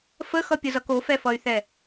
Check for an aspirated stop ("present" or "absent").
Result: absent